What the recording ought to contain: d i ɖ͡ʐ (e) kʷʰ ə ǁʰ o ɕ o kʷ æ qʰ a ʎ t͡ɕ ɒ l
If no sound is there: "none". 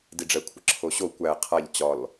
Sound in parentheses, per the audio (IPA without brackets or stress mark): ɛ